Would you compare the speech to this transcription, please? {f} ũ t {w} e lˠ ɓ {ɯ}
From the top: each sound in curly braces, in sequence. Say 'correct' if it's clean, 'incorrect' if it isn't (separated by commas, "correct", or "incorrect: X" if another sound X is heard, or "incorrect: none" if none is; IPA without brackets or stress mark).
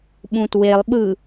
incorrect: ɓ, correct, correct